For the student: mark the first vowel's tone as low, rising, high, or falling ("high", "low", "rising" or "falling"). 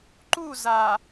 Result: falling